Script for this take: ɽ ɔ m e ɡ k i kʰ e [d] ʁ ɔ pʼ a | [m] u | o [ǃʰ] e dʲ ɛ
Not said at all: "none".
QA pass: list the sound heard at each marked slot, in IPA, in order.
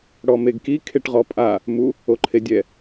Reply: ʈ, m, ǃʰ

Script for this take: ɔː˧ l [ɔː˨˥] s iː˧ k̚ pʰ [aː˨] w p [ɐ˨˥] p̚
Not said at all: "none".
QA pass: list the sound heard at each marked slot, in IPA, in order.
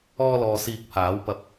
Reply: ɔː˨, aː˨˥, ɐ˨˥

